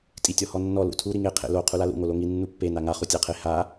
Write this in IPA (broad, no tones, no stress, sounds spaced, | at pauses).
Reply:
tʼ i tʲ ɔ h ɔ nː ɔ l ṵ tʰ u ɾ i ŋ e qʰ ḛ l o qʰ u l a l ṵ ŋ o l o ŋ i nː u pː e n a ŋ a χ u tʲ a qʰ e h a